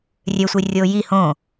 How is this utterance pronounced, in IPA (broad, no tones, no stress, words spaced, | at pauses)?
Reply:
rʲøsʷirʲo ji hõ